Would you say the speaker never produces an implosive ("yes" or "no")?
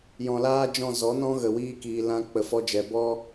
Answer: yes